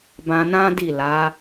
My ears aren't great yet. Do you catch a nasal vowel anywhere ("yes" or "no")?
yes